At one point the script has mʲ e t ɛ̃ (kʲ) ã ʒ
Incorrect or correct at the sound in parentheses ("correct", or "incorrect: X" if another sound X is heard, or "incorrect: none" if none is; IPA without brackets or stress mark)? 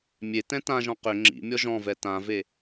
incorrect: t